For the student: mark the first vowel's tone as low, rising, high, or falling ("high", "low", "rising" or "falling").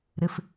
low